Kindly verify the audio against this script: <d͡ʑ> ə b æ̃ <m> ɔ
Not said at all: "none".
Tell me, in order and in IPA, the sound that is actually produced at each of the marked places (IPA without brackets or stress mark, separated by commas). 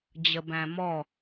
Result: d͡ʑ, m